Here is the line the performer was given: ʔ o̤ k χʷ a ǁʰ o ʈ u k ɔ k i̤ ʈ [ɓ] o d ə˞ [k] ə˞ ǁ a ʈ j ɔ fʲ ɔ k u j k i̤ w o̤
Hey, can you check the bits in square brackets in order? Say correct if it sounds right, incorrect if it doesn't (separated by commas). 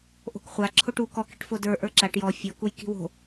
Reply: incorrect, incorrect